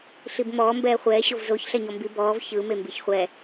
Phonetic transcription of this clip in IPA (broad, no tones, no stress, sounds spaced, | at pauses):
ɬ i b m ɔː m b ɛː χʷ ɛː ɕ o v z o ç ɬ ɛ ɲ ɔ m b i b ɔː v ç ɯ m e m b i ç χʷ ɛ